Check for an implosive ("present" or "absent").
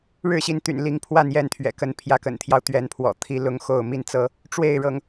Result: absent